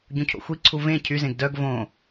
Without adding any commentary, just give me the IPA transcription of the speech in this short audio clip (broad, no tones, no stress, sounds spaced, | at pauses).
ɟ ũ cʰ o̰ xʷ i ǀʰ u v ẽ cʰ y z ẽ ɡ d œ ɡ v õ